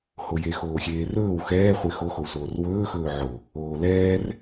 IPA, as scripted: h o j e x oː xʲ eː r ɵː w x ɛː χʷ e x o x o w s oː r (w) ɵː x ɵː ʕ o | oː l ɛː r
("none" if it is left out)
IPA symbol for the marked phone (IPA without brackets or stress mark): w